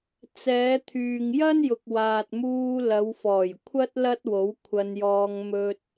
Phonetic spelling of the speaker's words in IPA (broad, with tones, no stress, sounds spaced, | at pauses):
t͡s ɛː˨˧ t̪ʰ yː˨ ŋ j ɐ˥ n j ʊ˨ k̚ w aː˨ t̚ m uː˧ l ɐ˨˧ w f ɔː˨˩ j kʷʰ ɐ˥ t̚ l ɐ˥ t̚ w o˨˥ w kʷʰ ɐ˧ n j ɔː˧ ŋ m ɵ˧ t̚